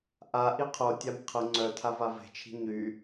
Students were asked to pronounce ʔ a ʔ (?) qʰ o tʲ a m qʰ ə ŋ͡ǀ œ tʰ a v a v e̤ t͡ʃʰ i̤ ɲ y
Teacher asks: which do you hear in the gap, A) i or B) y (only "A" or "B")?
A